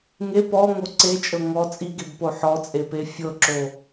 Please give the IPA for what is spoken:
ŋe pɔŋo ǀet͡ʃʼɤ ŋɔ t͡sʼiɡebpo ħɔt͡sʼepe fʲɤǁo

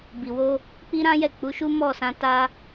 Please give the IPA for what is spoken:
bi˨wo˧ | k͡pi˦ɾã˦jɛ˦˨ k͡pu˨˦ ʃu˦mɔ˦˨sã˧ ta˧

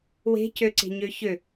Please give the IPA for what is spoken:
we̤cøǀe̤ɲø çø

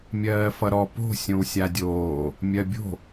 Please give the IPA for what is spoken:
mʲɜːfʌɾɔ po̤ sʲõwsʲadʲoː | mʲɜbʲo̤

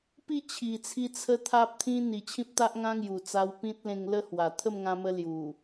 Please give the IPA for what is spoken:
pi˥˧t͡ɕʰi˨˩t͡sʰi˧ t͡sʰə˦t̪ʰa˦p̚t̪ʰĩ˦ n̪i˨˩t͡ɕʰĩ˦p̚t̪a˦ʔ ŋã˦ŋju˨˩t͡sa˧wpĩ˦t̚ lẽ˧ŋlə˥˧hwa˨˩ t̪ʰə˥˧mŋã˧mə˧ lju˨˩

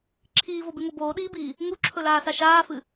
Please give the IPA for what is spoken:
ǁʰiːvobʉŋo boːɗiːbiː | ŋuǁʰɵlaːsa ʃaːfɨ

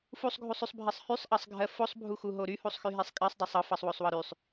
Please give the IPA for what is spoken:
fusˤɡʱusˤysˤbʱɜsˤ hysˤʔɑsˤɡʱɜ fosˤbʱuxuɦo ɾyhusˤxyɦesˤ kʼɜsˤdˤɜsˤ ɤfɑsˤwosˤwɤ ɾysˤ

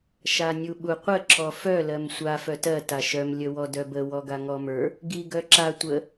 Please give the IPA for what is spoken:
ʃanʲuɓuqʷə ǁɔfœ lɜmsʷa fœtɜ taʃœm lʲəwɔdœbə wɔɡaŋɔmə˞ | ɡi ɡœǁa tʷə

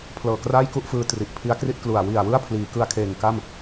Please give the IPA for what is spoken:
pʰlɤː˨˩kraː˥˩jku˥˩ʔ fɯː˧ tri˨˩ʔpʰi˦˥a̯kri˥˩t̚klu˨˩a̯ wi˨˩a̯ wɯ˥˩a̯ pʰliː˩˦kɯ˧a̯ kʰeː˨˩ŋka˥˩m

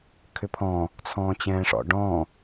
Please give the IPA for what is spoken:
kʰʏpʰɔ̃ | t͡sʰɔ̃ːt͡ɕɛ̃ːʂɔ̰ ɖɔ̃

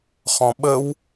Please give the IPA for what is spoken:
χɔ̃ɓəw

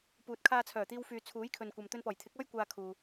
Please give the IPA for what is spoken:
puː˨t̚kʰaː˧t͡sʰœː˨˩t̪iː˧w fyː˨t͡sʰuː˨˥j kʰɵ˨nkʷɐ˨m t̪ɵ˧npɔː˨˩jt̪ʰɪ˨˥k̚ɔː˥j kʷaː˧ kʰuː˨

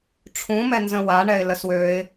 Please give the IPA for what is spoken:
ʈ͡ʂʰũmɛnzə̃ waɳɛɪ̯ ləswøɪ̯

